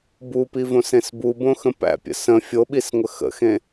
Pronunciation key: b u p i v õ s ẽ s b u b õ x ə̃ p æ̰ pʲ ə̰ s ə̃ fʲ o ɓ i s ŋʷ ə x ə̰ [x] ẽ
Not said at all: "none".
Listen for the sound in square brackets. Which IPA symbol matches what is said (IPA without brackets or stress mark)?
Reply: x